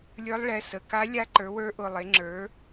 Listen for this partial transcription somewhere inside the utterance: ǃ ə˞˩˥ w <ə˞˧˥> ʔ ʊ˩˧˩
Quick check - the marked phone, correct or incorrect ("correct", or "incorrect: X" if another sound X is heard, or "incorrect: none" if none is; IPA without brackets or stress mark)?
correct